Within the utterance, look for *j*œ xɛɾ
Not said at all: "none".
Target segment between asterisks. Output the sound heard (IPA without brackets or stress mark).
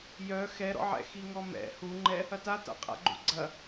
j